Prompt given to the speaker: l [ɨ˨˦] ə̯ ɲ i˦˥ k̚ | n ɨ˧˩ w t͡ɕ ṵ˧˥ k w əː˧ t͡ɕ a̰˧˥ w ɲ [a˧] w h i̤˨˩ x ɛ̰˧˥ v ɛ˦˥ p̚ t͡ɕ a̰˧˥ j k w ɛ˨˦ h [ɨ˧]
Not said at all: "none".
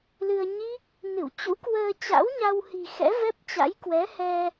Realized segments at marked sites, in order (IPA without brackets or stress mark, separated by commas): ɨ˧, a˧, ɛ˧